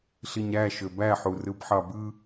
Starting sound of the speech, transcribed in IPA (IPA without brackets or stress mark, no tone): ɬ